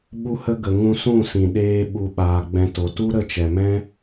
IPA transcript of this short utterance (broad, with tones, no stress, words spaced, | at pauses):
ɓu˦hə˦ ɡə˨ ŋũ˧sũ˦˨sĩ˨ɗeː˧ ɓu˧ ɓaː˧ɡ͡bɛ̃˦to˧ tu˦ɾə˦˨t͡ʃɛ˨mɛ̃˦